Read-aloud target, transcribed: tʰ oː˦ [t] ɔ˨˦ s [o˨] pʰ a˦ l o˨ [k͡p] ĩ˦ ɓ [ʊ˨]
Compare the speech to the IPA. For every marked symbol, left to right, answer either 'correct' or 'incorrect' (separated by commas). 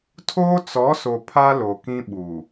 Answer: incorrect, correct, incorrect, incorrect